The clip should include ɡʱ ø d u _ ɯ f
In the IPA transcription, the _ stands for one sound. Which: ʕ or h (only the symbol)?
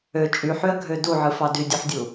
ʕ